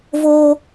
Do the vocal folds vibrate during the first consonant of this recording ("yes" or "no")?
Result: yes